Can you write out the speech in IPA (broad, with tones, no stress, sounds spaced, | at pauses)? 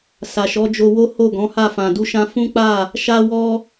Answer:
s a˨ ʃ ɔ˨˦ d͡ʒ o˧ w o˦ h o˦˨ ɡ ɔ̃˨˦ h a˦˨ f ã˨ d u˧ ʃ ã˧ f ũ˦ k͡p a˦˨ | ʃ a˧ w ɔ˧